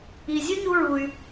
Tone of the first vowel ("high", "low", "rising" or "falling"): low